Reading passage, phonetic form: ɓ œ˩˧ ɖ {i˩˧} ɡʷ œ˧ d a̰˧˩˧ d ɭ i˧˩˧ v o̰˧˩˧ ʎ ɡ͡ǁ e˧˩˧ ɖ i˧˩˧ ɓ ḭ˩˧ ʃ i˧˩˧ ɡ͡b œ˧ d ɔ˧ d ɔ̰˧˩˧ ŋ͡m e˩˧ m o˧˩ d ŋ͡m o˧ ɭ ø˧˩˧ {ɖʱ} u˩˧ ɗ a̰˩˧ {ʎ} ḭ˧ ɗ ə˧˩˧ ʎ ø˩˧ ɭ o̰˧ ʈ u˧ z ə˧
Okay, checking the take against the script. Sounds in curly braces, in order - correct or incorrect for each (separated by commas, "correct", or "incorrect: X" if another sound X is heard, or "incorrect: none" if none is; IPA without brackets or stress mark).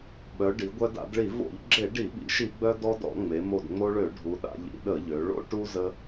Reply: correct, correct, correct